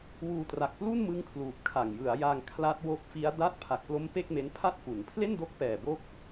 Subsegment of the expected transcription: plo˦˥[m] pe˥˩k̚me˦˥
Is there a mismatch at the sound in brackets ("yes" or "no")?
no